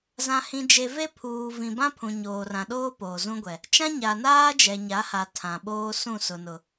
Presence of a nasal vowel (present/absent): present